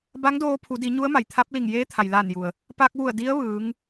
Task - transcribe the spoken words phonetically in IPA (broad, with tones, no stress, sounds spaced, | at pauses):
b a˧˥ ŋ d oː˧ pʰ u˩˧ d i˩˧ ɲ u˧˥ ə̯ m a˩ j t̪ʰ a˧˥ p̚ l i˧˩ ŋ j eː˧˥ t̪ʰ a˩ j l aː˧˩ n j u˩ ə̯ | p a˧ k̚ ʋ u˧˩ ə̯ d i˧˥ ə̯ ʋ ɯː˩˧ ŋ